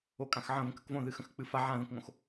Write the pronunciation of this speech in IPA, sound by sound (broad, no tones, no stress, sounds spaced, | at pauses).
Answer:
o kʼ ã x ʕ ə̃ v ə̃ k ə k v õ ð ɨ x ə̃ x k͡p ɨ f a ʕ ã ð ə̃ k ŋ õ x